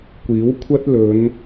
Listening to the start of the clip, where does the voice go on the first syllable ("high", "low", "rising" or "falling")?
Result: rising